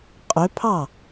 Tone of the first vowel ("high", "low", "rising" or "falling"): rising